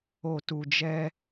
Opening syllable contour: low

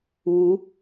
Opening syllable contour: rising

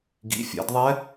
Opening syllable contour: rising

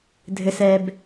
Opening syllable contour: low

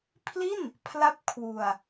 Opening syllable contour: falling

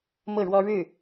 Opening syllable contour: falling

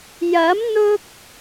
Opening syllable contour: rising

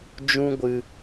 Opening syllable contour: high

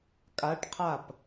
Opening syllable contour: rising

